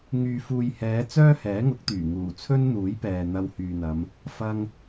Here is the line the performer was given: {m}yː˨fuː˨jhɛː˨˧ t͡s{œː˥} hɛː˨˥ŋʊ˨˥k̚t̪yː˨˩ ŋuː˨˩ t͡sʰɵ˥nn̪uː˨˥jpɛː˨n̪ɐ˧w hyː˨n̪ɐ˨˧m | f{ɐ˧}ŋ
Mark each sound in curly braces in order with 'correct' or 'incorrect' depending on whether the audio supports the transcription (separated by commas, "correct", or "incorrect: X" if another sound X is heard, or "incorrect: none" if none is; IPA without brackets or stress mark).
incorrect: ŋ, correct, correct